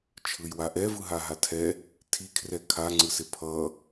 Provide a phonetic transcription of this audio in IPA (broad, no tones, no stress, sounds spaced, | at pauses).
t͡ʃʰ ɯ j w a ʔ ɛ v ɯ ɦ a ɦ a tʰ ɛ | tʰ i kʰ r ɛ kʰ a ŋ͡ǀ ɯ s e pʰ ʌ